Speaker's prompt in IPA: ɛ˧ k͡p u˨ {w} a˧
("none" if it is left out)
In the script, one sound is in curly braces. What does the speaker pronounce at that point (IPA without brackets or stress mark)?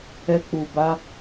b